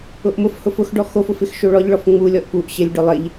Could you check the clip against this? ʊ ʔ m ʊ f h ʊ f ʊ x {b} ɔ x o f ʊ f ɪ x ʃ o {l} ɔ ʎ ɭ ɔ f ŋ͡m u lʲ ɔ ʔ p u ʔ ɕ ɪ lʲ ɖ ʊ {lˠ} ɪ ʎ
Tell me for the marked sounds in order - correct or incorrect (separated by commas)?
incorrect, incorrect, correct